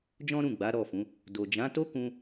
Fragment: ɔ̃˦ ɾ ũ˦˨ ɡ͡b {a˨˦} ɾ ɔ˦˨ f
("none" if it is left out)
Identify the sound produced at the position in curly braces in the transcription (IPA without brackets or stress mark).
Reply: a˨˦